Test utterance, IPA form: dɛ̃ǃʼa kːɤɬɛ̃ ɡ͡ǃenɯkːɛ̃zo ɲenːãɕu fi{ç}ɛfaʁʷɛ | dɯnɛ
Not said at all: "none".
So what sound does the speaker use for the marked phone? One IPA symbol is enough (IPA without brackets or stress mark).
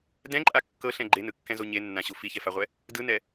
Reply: ç